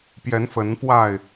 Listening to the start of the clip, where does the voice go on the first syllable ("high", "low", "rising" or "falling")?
rising